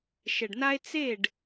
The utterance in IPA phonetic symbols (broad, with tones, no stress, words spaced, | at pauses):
ʃɛ˨ɖna˦e̯ t͡se˦˨ɖ